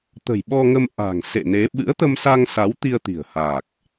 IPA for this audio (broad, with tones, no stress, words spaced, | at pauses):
t̪ə̤˨˩jɓɔ˧ŋə˧m ʔa̤˨˩ŋ sḛ˧˨ne˨˦ ɓɨ̰˧˥ə̯t̪ə˧msa˧ŋsa˨˦w t̪i˧ə̯t̪i̤˨˩ə̯haː˨˩k̚